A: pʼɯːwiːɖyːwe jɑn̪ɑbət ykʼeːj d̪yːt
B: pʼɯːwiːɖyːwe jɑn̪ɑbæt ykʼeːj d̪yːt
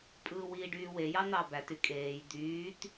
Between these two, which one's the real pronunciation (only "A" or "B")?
B